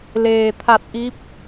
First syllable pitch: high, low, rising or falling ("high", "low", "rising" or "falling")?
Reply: low